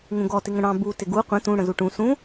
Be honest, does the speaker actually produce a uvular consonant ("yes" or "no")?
yes